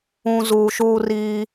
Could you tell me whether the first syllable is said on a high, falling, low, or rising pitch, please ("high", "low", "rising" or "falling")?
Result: low